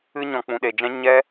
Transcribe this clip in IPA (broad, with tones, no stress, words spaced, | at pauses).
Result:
ɨ˧ɲɔ̃˨ k͡pũ˨ɗe˨d͡ʒɛ̃˦ ɲɛ˦